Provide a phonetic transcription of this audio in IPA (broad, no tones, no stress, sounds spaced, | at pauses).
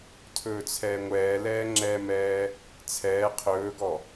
tʰ ɵː t͡sʰ ɛː ŋʷ ɛː l ɛː ŋ͡ǁ ɛ m ɛː | t͡sʰ ɛː qʰ ɵː ɡ ɔ